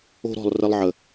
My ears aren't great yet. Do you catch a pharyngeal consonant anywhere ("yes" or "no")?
yes